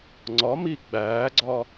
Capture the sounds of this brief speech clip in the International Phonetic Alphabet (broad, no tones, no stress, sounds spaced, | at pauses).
ŋ͡ǀ ɒ m i ɡ͡b æː ɡ͡ǀ ɒ